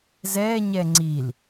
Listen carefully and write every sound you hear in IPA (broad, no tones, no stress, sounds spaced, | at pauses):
z ɛ ɲ ɛ ŋ͡ǀ i l